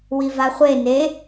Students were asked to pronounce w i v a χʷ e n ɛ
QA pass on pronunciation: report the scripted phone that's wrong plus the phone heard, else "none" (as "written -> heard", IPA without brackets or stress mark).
ɛ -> e